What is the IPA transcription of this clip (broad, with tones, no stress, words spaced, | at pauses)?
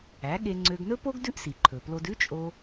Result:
æ˩˥ɠe˧ ŋ͡ǀø˧ɡnɵ˥po˥ɡ dʉ˥ʔsi˩ ǃʰɵ˩plo˧d ʉ˥t͡ʃʼo˧